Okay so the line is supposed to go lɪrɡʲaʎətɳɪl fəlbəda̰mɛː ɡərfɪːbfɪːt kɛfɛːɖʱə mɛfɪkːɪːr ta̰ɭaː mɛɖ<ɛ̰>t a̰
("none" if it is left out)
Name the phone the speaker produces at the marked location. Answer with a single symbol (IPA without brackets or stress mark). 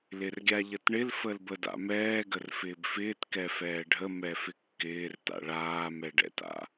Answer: ɛ̰